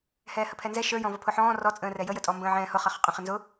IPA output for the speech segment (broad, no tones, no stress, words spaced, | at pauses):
hɛːhəpʰɛnzɛ ʃə˞jɔ̃ vʌpʰʊħɔ̃ː rɔt͡sʼə̃ːrɛ jəjətʼɔ mbə̃ːʕɛ̃ːhʊ χʌχʊqʼə̃ χənzʊ